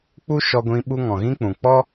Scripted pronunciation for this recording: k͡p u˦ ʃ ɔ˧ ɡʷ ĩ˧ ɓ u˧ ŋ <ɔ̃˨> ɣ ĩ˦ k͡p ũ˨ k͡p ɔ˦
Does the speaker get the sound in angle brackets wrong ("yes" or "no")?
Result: no